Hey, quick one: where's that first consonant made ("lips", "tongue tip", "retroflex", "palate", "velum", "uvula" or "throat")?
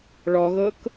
retroflex